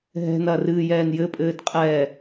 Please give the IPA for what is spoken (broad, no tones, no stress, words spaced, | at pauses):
ɦɛ̤nɐːrɨːjɛːn jɘpʼɘːd qʼɛ